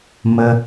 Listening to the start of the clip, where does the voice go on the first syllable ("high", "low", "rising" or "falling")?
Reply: high